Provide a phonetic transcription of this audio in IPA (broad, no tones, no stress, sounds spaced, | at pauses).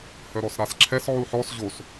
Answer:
h œ ɾ ɔ s ɾ a s ǁʰ ɛ s ʕ u ħ ɔ s ʑ o s